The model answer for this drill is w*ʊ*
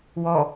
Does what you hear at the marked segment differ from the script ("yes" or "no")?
yes